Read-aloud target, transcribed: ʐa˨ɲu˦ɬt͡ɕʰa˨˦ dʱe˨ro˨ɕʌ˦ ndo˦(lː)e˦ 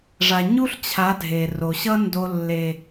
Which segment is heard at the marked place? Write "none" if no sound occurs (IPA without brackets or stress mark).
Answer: lː